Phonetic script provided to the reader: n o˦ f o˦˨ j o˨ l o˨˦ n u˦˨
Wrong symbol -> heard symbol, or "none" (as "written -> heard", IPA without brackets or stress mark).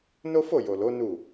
none